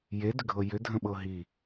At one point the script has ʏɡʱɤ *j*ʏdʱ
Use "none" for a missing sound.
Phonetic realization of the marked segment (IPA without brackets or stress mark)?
j